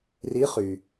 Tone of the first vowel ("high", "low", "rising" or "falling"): rising